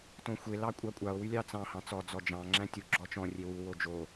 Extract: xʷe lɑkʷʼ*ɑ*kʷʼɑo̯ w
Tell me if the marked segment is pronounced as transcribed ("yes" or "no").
yes